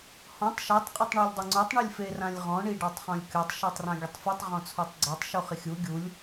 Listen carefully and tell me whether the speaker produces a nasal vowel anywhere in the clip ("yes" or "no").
yes